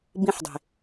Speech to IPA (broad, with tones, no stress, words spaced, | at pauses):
bĩ˧ħdˤe̤˨